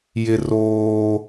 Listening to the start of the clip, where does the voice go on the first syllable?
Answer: high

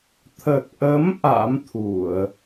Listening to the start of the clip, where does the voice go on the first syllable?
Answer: low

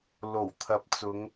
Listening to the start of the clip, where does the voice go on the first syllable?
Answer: low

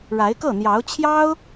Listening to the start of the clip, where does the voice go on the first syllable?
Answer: rising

